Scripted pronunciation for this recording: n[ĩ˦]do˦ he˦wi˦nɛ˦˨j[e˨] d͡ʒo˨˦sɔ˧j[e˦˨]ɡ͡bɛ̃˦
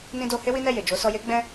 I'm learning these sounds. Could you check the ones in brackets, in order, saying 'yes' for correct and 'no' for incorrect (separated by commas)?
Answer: yes, yes, no